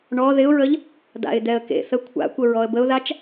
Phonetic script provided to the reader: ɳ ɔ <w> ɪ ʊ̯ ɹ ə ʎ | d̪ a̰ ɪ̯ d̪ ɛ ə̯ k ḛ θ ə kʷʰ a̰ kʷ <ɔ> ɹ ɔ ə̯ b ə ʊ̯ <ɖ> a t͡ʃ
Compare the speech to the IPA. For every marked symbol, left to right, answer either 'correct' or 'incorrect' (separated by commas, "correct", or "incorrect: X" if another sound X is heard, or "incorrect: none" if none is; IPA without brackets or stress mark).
incorrect: ð, incorrect: ə, incorrect: ð